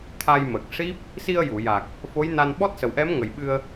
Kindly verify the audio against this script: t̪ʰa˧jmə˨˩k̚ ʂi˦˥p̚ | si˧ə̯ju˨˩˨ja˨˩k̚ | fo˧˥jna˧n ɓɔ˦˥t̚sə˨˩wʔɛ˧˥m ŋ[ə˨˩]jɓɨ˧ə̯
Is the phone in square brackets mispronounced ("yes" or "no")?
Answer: no